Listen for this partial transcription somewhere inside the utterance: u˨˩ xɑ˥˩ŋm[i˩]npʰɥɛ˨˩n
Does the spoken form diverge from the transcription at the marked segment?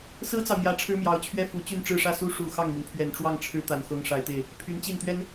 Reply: no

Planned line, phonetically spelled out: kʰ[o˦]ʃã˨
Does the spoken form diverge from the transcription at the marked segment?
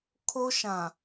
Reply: no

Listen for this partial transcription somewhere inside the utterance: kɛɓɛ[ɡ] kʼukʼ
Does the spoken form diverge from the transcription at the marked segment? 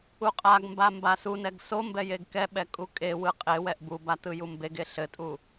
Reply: yes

